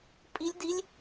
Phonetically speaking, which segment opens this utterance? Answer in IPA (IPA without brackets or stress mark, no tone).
pʼ